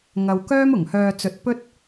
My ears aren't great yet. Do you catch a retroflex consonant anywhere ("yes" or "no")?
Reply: no